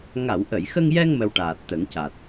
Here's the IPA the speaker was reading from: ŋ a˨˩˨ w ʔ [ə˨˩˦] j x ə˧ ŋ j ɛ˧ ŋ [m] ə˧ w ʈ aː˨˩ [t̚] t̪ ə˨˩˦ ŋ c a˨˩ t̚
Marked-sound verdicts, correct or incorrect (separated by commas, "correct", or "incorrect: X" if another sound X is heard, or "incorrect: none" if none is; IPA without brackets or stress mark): incorrect: ə˨˩˨, correct, correct